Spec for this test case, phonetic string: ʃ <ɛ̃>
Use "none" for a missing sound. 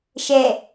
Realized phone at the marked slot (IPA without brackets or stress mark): ɛ